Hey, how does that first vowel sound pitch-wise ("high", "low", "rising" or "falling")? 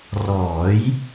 rising